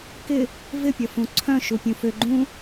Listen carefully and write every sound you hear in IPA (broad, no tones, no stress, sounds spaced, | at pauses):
k ɪ | v ɪ pʲ ɐ f ũ ǀʰ œ̃ ʃ u pʲ ũ f ʏ ɡ͡ǃ ũ